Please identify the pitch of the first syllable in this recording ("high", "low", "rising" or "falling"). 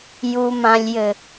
low